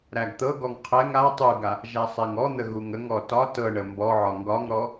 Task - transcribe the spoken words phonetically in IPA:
ɾæɡt̪ɤɡɔŋ qʰɛŋ a tˤuɡa | ʒæsˤɛŋɔn̪ə ɣuŋəŋɔ tɒ tɤɳə mbɔʕɒ ŋɡɒŋɾɔ

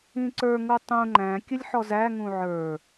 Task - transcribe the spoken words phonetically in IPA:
ĩǀə˞ ŋutˤũ ŋ͡ǃæ̃ kʲəlʲħɔzæ ŋũʕə˞

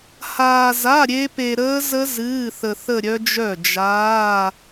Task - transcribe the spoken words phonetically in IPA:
haː˧za˧˥˧ ɾʲe˦˥pe˧ ɾəː˦˥zə˦˥ zɨː˧˥˧θə˧ θə˥˧ɾʲœ˦˥d͡ʒœ˥˩ d͡ʒaː˧˥˧

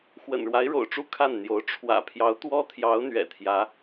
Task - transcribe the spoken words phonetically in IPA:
xwə̰˨˩nɻwa˧˥ɪ̯ɻo̰˨˩ʊ̯ʈ͡ʂu˥˧ kʰa˥˩nn̪jo˧˥ʊ̯ ʈ͡ʂʰwä̰˨˩pʰjɑ˧˥ʊ̯t̪wɔ˥t̪ʰjɑ˧˥ʊ̯ n̪ɥɛ̰˨˩t̪ʰjä˧˥

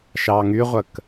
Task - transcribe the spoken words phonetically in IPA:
ʃɑŋyʁʷək

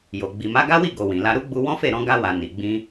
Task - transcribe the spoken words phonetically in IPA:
jo˨ ɡ͡bi˨ma˨˦ɡa˦wi˦˨ ɡo˨wĩ˨la˧ ɾu˦ɡ͡bu˧ wɔ̃˦fe˦˨ ɾɔ̃˧ɡa˧wa˨ ni˨ɡ͡bĩ˧

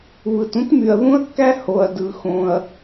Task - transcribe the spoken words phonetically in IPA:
βɯ˩tũ˥tmy˩ɐ̯ ðũ˥ɐ̯kːæ˥ ho˩ɐ̯dɯ˩ xõ˩ɐ̯

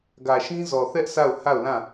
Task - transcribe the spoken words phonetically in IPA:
ɡä˨ʃĩ˦zɔ˨θɛ˦ʔ sa˦˨ʊ̯ha˦˨ʊ̯lã˦˨

